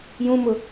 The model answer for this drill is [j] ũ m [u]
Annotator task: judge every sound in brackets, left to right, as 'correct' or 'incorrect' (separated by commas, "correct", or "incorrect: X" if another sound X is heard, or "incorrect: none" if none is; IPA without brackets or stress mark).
correct, incorrect: ʊ